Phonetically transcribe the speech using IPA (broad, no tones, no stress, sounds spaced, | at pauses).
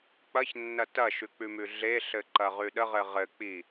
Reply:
k͡p ɐ ç nː ɐ t ɐ ʃ ʉ k͡p ʉ m ʉ ɮ e ɬ ɘ ǃ ɐ ʁ ʉ ɗ ə ʁ ɘ ʁ ɘ k͡p i